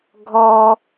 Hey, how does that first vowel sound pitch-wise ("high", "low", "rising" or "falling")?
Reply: low